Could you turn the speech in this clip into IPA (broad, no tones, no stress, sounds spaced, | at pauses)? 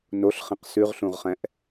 n o ɬ χ ĩ q s ʉ ʁ ɬ ũ ʁ χ ɛ̃ ʔ